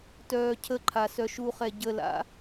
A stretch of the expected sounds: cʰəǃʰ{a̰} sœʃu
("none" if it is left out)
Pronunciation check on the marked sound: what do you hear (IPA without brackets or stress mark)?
a